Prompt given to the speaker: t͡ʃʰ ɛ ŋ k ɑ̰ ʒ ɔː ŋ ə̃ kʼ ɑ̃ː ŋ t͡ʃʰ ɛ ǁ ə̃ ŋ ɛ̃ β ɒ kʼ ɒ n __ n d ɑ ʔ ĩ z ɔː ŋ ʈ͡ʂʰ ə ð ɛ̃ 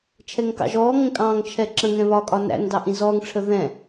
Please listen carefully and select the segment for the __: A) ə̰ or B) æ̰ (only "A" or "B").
B